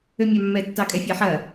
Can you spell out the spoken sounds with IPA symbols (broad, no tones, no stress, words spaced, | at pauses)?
ømʲɑmːɛ tːɑkʼɛfʲaħɐ